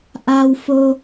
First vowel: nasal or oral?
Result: oral